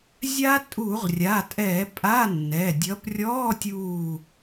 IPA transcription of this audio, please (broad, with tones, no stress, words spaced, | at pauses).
zʲa˦˥ tʼu˧˩˧ʁrʲa˩˧˩tʼɛː˧˩˧pʼa˧˥˧ nːɛ˩˧˩dʲʌ˨˥p rʲɔː˧˥˧tʲuː˧˩